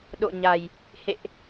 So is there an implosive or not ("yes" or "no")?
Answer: yes